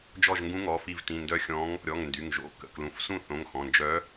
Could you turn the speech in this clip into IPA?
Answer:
d͡ʒ ɔ˦˨ ʒ ŋ ɡ ũ˧˥ ŋ ɔ˩˧˩ f i˦˨ v t ĩ˩˧˩ n d œ˦˨ xʲ ɔ̃˧˥ ŋ | ɾʲ ɔ˩˧˩ ŋ n d y˩˧˩ ŋ ʒ o̰˩˧˩ k ə̰˩˧˩ k l ũ˩˧˩ f s ũ˦˨ θ õ˩˧˩ ŋ x ɔ̃˩˧˩ n d͡ʒ œ˧˥

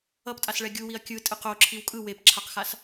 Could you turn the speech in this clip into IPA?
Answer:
ʌ p tʼ a s ɭ ɛ ɡʲ u w i ɐ̯ kʲ ɯ tʼ ɯ q o ǁʰ i w kʼ ɯ w e p ǁʰ a q x a s

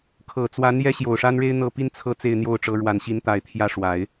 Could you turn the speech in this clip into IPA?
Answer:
kʰ ɤ˨˩ t͡s w a˧˥ n j ɛ˥ ɕ j o˨˩ ʊ̯ ʂ a˥ n ɻ e˥ ɪ̯ n̪ ɤ˥˩ p i˥ n t͡sʰ ɤ˥˧ t͡s e˥˧ ɪ̯ n̪ j o˥˩ ʊ̯ ʈ͡ʂ ɤ˧˥ ɻ w a˨˩ n ɕ i˧˥ n t̪ a˨˩ ɪ̯ t̪ʰ j ä˥˩ ʂ w a˨˩˦ ɪ̯

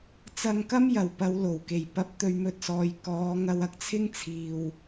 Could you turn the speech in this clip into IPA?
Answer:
t͡s ɐ˧ ŋ k ɐ˥ m j ɐ˨˩ w p ɐ˨˧ w l o˨˩ w k e˨˩ j p ɐ˧ p̚ t̪ ɵ˧ ɥ m ɵ˧ t̚ s ɔː˨ j k ɔː˨˧ ŋ ɐ˧ w ɐ˧ k̚ t͡sʰ ɪ˥ ŋ t͡sʰ iː˨ w

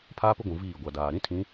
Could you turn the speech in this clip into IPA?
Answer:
pʰ aː˦ p ʊ˦ ɡʷ ũ˨ v iː˦˨ ɡʷ a˨ d aː˨ ɾ ĩ˦ tʰ ĩ˨˦

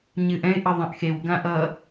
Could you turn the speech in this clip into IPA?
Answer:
ɲ ɨ ʔ ɛ̃ ɪ̯ ʔ ʌ ðˤ ɛ̃ ʔ x e w ɡ ã ʔ ʌ

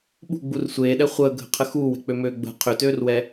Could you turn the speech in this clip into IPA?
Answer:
ɓ ṳ ɡ͡b u r sʷ eː ɗ ɛ χʷ əː ɡʱ ə̤ qʰ ə x uː w ɛ̤ k͡p ø m øː ɡ͡b ə̤ qʰ ø t øː r w ɛ

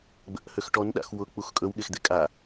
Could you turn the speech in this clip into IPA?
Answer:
ɡ͡b ə̰ ʔ h ø x ʈ ɔ n ɗ a̰ x w ʊ k͡p u x kʼ ɵ w ɠ e x d̪ e kʼ a

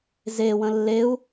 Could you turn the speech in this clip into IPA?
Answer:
z e w ə̃ lː e u̯

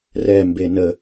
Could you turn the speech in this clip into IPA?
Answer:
r ɛ m b e n ə

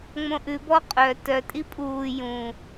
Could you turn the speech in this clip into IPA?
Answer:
ŋ͡m õ ʔ ʉ b ɔ qʼ œ t œ tʼ i pʼ uː j ũ

